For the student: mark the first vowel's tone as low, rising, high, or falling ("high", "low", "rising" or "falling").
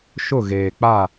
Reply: falling